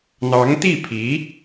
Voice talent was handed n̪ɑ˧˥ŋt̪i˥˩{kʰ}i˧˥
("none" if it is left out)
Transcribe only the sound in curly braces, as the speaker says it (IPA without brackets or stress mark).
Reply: pʰ